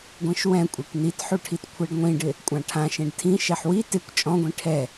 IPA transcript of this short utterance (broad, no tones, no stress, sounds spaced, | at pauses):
ɡʷ ẽ ʃ w ɛ̃ kʷʼ e kʷ n i t ħ u ʈʰ i t kʷʰ ɛ ɖ ŋʷ ĩ ɖ ɪ | kʷʼ ã ʈʰ ã ʃ ẽ ɖ tʰ ĩ ʃ ɛ ħ w i t ɪ kʷ t͡ʃʼ ɔ̃ ɡʷ ĩ ʈʰ ɛ